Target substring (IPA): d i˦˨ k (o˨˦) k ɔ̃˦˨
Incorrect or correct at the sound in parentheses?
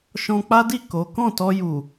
correct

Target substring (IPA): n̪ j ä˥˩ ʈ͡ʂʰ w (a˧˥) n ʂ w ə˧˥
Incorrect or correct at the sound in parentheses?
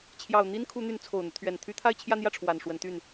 incorrect: a˨˩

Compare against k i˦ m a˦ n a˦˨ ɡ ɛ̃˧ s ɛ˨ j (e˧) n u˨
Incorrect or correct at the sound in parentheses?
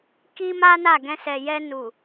incorrect: ɛ˧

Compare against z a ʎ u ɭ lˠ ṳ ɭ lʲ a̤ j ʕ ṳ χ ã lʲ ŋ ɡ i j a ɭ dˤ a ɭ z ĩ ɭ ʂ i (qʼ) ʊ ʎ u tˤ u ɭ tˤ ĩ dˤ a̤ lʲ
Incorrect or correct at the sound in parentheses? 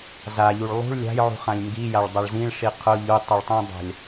incorrect: qʰ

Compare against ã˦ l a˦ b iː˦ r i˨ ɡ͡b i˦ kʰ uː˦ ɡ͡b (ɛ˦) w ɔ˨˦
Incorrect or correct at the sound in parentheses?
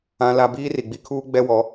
correct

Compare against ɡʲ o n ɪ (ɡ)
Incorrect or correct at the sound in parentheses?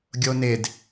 incorrect: d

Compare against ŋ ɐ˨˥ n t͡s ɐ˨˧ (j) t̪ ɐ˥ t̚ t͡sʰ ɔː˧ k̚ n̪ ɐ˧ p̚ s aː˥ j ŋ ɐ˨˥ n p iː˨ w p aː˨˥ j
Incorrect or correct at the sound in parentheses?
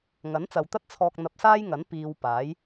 incorrect: w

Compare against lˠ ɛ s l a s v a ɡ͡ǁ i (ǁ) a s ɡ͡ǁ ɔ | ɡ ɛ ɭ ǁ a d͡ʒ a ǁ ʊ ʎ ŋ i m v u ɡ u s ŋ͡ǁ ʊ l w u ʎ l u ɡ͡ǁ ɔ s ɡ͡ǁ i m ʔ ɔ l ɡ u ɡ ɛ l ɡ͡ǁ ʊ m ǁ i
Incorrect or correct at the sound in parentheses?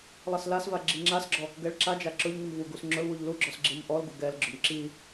incorrect: ŋ͡ǁ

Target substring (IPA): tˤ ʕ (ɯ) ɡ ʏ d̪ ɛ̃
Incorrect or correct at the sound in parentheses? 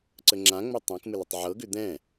incorrect: ɤ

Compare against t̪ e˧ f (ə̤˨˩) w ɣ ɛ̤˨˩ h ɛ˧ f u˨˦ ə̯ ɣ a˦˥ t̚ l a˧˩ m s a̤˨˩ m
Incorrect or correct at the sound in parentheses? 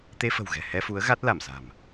correct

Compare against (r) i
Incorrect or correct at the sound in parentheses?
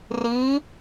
correct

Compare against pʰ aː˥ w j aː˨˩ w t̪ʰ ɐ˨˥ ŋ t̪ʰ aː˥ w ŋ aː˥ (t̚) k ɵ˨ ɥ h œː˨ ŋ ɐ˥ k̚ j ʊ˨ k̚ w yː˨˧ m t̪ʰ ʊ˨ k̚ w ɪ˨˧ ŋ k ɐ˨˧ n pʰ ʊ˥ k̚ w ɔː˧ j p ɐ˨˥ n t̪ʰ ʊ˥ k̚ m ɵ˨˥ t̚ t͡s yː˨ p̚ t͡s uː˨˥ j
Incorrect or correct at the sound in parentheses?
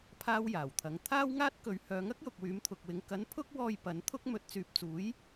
correct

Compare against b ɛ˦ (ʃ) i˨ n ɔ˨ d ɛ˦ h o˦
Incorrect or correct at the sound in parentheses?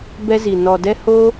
incorrect: z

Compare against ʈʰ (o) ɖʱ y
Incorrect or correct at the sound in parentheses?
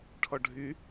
incorrect: ɔ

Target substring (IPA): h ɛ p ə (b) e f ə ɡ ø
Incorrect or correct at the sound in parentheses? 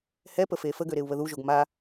incorrect: f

